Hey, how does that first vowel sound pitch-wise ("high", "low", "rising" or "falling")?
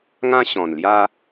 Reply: high